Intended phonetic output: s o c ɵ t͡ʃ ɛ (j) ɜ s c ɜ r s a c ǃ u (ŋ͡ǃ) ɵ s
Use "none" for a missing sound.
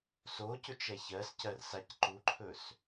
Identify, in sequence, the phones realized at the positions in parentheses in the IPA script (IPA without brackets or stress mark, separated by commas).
ç, ǃʰ